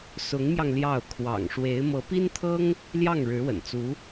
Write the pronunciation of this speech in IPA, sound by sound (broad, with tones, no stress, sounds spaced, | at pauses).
s ʊ˧˥ ŋ m j ɑ˧ ŋ l j ɑ˥˩ ʊ̯ kʰ w ɑ̰˨˩ ŋ ʂ w e˧˥ ɪ̯ m ɤ˧˥ p i˥ n t̪ʰ ɤ˥ ŋ | l j ɑ˥˩ ŋ ɻ ɻ̩˧˥ w ə̰˨˩ n t͡s u˧˥